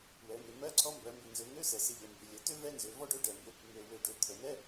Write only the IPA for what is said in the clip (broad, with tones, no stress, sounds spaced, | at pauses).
w ɛ˩˧ m ø˩˧ m ɜ˧˥˧ ǀʰ ɔ˧ m b ɜ˩˧ m b ɪ˨˩ n z ø˩˧ ŋ ø˧˥˧ s ɛ˨˩ s ɪ˧ ʎ ɛ˩˧ m b ɪ˩˧ lʲ ə˩˧ t ø˥ v ɛ˧˥˧ n z ø˩˧ v ɔ˥ ɖ ø˧˥˧ ɖ ɛ˨˩ m b ɪ˧ | m ø˨˩ w ø˨˩ ɖ ø˩˧ t̪ʰ ə˩˧ n ɛ˧˥˧